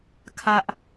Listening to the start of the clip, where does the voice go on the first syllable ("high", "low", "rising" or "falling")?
high